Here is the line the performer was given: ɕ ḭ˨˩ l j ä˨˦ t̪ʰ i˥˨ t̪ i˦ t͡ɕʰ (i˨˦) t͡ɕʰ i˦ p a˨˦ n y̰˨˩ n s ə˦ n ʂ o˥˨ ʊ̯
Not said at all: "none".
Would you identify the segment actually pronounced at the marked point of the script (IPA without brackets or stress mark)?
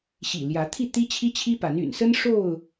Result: i˦